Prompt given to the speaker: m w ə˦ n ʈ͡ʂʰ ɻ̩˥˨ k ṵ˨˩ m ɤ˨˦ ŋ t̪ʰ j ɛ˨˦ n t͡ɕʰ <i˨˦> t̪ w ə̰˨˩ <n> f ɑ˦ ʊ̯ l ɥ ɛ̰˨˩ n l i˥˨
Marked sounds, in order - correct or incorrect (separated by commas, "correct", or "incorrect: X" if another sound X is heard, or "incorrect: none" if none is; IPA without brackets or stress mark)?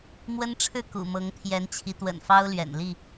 correct, correct